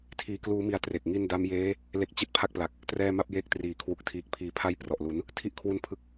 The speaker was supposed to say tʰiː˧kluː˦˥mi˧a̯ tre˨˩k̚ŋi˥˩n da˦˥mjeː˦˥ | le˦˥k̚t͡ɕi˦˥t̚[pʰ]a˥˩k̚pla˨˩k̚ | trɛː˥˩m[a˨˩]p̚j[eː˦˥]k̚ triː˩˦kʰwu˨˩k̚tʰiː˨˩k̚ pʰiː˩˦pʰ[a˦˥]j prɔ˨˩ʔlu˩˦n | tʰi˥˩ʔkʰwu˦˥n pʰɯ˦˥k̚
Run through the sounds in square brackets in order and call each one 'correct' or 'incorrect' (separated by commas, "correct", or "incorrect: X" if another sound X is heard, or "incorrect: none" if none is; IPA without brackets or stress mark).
correct, incorrect: a˥˩, correct, correct